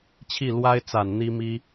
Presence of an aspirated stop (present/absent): present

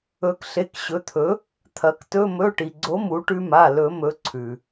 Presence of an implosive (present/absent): absent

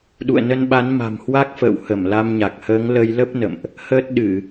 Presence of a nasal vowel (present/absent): absent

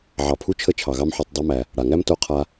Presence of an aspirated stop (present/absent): present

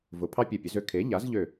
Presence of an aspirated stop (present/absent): present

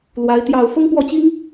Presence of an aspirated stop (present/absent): absent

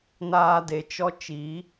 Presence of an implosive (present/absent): absent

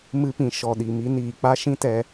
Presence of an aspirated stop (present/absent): absent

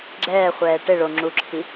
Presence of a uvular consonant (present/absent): present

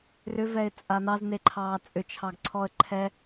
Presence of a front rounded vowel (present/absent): present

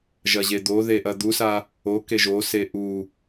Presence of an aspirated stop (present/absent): absent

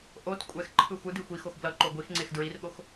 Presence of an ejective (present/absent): present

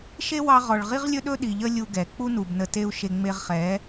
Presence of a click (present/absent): absent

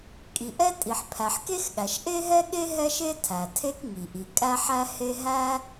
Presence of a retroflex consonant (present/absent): absent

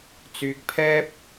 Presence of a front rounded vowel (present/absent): present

